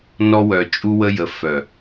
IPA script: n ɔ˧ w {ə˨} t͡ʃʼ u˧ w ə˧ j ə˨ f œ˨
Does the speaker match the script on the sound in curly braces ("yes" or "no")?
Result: no